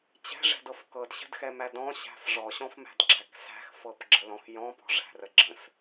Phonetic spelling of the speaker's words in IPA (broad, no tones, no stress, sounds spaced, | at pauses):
t͡ɕ ɛ̤ ʐ ɛ̤ d ɤ f k ɤ d ɕ ə̤ d x ɛ m æ d ɔ̃ ɕ æ̤ f ʐ ɔ ɕ ɔ̃ f m æ̤ d ɡ͡ǁ æ k s æ̤ x f ɤ p ɡ͡ǁ ə l ɔ̃ x j ɔ̃ p ɔ̤ ʐ æ̤ r ə ɡ͡ǁ ə̃ s